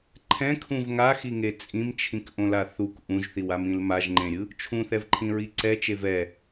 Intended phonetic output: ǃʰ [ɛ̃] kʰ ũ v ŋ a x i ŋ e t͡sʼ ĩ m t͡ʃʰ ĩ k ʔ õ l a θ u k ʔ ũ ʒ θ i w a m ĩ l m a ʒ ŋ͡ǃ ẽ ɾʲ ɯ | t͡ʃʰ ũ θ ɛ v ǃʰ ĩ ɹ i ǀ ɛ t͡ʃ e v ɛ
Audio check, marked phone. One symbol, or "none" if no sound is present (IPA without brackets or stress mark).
ɛ̃